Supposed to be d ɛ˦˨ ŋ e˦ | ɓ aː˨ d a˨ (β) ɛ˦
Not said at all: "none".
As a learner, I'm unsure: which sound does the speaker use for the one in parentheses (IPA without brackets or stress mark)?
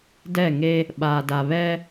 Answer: β